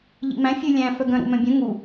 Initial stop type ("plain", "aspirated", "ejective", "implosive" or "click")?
plain